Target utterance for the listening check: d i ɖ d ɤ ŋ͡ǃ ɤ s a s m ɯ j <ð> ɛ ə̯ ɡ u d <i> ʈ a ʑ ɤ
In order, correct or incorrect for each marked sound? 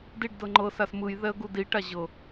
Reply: correct, correct

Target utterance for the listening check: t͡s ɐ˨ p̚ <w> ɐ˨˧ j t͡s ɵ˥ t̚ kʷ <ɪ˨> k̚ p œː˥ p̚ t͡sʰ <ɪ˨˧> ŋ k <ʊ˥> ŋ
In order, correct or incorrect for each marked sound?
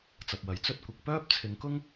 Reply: correct, correct, correct, correct

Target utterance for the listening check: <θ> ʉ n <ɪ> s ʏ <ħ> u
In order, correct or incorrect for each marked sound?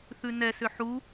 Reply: correct, incorrect: ɛ, correct

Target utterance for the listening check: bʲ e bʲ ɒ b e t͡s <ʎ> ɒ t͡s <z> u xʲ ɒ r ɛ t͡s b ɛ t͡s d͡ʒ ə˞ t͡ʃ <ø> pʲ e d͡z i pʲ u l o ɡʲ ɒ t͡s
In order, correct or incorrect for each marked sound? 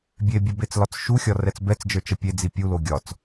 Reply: incorrect: l, incorrect: ʃ, incorrect: ə

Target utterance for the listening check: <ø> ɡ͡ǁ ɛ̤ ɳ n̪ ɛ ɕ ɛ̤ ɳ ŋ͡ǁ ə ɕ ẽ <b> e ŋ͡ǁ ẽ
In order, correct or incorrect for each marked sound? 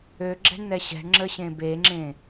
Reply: correct, correct

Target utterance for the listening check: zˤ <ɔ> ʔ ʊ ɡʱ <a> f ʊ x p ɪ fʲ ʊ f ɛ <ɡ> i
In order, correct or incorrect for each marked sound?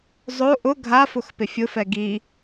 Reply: incorrect: o, correct, correct

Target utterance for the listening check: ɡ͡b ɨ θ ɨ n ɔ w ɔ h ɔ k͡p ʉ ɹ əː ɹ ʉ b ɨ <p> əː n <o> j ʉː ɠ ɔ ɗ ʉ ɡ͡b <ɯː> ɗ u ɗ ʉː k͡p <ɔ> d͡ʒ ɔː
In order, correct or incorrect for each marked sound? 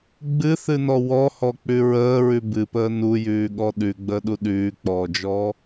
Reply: correct, incorrect: u, incorrect: əː, incorrect: ɔː

